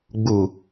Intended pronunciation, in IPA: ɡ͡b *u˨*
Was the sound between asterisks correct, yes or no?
yes